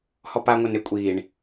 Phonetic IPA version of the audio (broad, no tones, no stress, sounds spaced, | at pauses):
h ɔ p a ŋʷ ɪ n ɪ kʷʼ iː ɳ